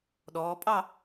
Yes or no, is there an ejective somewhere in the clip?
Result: yes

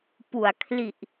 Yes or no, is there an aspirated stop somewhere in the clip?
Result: yes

